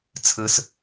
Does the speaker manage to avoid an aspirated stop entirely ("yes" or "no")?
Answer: no